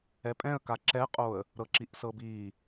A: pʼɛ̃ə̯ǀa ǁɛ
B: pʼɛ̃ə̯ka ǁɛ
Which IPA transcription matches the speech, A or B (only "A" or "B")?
B